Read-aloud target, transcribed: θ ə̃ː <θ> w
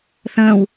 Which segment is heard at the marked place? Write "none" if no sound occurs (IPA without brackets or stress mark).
none